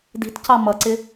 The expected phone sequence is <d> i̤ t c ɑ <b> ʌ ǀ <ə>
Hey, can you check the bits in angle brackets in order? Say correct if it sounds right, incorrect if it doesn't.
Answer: correct, incorrect, incorrect

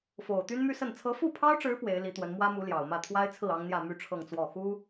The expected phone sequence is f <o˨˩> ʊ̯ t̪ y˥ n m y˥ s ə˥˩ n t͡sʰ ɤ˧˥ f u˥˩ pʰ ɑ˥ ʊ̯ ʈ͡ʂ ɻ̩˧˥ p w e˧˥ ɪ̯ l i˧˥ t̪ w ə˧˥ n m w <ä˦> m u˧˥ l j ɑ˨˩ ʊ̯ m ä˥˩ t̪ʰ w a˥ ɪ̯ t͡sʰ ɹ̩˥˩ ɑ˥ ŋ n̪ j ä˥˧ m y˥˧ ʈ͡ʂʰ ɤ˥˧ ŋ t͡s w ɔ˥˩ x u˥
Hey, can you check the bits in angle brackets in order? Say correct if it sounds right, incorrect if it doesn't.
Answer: correct, incorrect

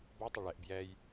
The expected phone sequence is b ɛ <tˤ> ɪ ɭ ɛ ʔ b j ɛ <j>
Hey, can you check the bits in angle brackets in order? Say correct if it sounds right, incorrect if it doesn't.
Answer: correct, correct

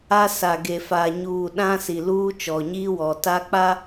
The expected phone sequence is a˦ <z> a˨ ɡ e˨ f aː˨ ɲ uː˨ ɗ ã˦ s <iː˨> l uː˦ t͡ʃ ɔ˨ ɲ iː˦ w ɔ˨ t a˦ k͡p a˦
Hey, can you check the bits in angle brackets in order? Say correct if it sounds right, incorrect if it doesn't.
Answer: incorrect, incorrect

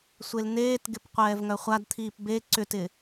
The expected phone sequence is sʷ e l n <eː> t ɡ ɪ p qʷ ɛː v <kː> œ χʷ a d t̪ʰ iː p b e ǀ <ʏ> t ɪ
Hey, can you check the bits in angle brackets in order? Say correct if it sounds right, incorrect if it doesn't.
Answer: correct, incorrect, correct

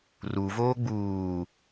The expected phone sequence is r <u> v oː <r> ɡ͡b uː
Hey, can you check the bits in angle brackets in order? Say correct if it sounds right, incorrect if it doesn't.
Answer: correct, incorrect

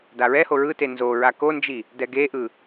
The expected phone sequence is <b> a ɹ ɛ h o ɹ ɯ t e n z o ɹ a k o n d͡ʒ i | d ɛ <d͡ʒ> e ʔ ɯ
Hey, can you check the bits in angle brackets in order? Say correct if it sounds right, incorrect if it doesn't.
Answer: incorrect, incorrect

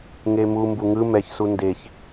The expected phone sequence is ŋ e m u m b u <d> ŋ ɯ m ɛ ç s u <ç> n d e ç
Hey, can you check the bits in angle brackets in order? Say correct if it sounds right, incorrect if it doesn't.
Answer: incorrect, incorrect

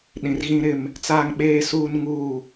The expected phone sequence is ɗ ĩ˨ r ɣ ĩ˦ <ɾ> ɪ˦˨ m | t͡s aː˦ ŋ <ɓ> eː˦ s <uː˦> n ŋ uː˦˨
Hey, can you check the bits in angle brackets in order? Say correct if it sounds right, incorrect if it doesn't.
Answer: correct, correct, correct

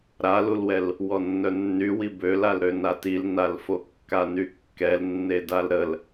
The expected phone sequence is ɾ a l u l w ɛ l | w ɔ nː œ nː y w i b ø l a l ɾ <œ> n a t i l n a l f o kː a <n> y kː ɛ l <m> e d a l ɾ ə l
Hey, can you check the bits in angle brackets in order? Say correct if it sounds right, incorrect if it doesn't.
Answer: incorrect, correct, incorrect

